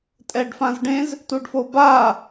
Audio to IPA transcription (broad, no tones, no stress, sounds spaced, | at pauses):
tʼ ɛ ɖ f ã z ɖ ẽ z | t u ɖ f o b a